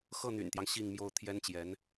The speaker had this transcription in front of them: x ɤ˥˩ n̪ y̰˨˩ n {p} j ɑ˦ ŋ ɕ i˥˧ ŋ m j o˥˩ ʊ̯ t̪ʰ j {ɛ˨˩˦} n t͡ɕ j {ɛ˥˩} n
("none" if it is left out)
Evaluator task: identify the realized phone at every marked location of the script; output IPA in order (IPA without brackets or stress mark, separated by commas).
t̪, ɛ˥, ɛ˧˥